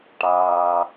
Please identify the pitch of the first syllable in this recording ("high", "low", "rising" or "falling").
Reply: low